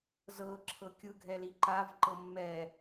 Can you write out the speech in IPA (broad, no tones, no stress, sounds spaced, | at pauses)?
z ɤ ǁʰ ɤ kʲ ɯ ɡʱ ɛ l i ǃ a v ǃ ɤ mː ɛ